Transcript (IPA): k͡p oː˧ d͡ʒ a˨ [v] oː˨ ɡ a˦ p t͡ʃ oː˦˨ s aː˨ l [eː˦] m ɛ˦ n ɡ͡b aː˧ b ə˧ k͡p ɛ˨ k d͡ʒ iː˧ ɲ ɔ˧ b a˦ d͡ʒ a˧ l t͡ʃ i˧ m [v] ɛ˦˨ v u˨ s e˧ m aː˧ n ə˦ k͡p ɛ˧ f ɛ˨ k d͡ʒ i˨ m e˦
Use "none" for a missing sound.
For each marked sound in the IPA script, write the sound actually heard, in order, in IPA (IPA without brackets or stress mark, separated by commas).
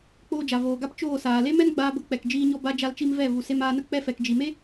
v, e˦, v